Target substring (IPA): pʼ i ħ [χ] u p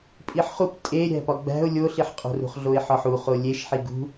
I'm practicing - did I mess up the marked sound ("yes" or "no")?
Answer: no